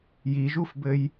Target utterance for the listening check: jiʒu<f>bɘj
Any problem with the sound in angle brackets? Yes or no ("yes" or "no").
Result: no